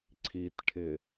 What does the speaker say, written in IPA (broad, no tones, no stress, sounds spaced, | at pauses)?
ǀʰ i t ʈʰ ɪ